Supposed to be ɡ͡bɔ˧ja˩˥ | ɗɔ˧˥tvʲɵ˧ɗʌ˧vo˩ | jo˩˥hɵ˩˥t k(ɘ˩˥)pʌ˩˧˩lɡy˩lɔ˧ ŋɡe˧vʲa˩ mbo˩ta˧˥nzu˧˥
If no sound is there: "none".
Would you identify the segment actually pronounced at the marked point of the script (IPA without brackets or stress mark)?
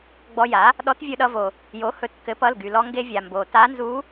ɘ˩˥